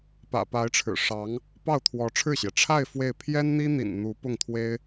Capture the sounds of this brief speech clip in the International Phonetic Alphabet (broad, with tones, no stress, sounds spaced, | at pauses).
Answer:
p ä̰˨˩ p a˧˥ ɪ̯ ʈ͡ʂʰ ɻ̩˨˩ ʂ ɑ˧˥ ŋ | p ɑ˥˩ ʊ̯ t̪ʰ w ɔ˧˥ ʈ͡ʂʰ ɻ̩˥˩ ɕ j ɛ˩ ʈ͡ʂʰ a˥˧ ɪ̯ f w e˥˩ ɪ̯ pʰ j ɛ˥ n n̪ i˥ n̪ ḭ˨˩ n n̪ u˧˥ p ʊ˥˩ ŋ t̪ʰ w e˥ ɪ̯